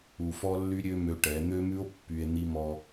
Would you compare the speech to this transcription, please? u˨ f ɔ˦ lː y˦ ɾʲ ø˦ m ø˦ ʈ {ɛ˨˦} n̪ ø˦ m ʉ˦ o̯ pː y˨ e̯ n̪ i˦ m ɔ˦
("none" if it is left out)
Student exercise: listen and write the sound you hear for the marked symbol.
ɛ˨˦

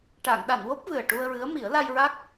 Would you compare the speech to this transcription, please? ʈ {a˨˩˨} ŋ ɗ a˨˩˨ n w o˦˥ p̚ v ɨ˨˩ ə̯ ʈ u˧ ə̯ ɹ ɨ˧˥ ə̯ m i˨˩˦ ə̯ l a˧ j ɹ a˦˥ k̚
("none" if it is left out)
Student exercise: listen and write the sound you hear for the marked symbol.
a˨˩˨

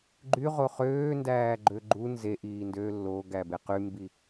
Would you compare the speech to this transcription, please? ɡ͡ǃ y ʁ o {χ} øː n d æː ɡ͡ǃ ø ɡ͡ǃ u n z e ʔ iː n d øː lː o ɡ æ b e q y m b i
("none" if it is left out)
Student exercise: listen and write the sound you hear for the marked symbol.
χ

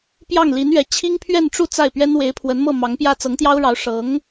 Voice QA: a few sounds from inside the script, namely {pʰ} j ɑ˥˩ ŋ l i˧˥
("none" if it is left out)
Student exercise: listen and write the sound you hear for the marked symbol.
p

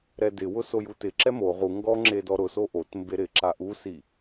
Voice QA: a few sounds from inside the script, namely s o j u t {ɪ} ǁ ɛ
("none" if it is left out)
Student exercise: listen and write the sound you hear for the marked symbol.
ɪ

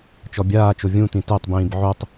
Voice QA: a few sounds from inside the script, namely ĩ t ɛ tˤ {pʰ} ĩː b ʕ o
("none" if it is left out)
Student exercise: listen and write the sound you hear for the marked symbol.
b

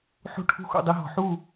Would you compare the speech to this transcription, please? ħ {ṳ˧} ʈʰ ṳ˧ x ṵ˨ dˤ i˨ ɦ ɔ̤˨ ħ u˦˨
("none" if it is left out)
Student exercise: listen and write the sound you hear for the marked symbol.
ṳ˧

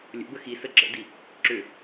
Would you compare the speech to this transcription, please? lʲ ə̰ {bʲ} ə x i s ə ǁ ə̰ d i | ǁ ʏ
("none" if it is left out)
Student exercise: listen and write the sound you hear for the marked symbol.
b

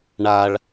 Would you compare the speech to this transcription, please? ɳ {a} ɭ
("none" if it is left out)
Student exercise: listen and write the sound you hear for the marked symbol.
a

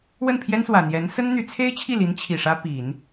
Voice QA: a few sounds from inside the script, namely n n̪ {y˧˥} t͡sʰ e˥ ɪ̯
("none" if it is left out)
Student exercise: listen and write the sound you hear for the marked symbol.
y˧˥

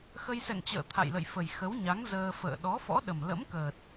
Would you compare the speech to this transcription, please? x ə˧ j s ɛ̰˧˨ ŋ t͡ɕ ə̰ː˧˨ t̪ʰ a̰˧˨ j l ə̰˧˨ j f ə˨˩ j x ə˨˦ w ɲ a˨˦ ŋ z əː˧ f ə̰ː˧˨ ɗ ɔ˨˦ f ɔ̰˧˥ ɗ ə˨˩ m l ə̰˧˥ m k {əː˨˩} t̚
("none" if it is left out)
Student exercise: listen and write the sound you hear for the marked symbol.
əː˨˩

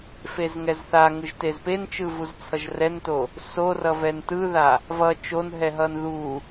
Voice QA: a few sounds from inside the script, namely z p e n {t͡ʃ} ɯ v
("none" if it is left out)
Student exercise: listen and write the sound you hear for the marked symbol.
t͡ʃ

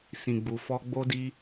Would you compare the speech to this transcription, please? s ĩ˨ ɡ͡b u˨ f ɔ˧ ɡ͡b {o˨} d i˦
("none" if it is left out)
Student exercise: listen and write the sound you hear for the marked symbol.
o˦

